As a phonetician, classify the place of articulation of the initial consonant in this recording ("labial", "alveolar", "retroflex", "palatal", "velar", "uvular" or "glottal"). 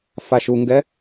labial